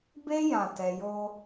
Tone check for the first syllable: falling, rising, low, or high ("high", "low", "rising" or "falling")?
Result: high